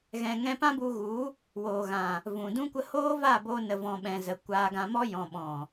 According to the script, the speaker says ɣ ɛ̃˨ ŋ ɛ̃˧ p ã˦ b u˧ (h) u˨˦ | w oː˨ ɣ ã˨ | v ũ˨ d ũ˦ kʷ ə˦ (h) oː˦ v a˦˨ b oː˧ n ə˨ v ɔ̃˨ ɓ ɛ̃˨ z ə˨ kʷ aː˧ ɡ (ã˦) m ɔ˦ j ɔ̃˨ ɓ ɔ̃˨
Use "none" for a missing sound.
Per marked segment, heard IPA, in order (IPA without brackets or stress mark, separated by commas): ɣ, h, ã˧